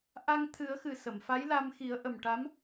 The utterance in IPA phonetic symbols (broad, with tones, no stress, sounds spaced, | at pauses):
ʔ a˧ ŋ t̪ʰ ɨ˨˩˦ ə̯ x ɨ˨˩ s ə˨˩˨ m f a˧˥ j l a˧ m x i˨˩˦ ə̯ ʔ ə˨˩ m ʈ a˧˥ m